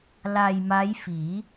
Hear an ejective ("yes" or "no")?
no